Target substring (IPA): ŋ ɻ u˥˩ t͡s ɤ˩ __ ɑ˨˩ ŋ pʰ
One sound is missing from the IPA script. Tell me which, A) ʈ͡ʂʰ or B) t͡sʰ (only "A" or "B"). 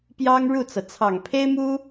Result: B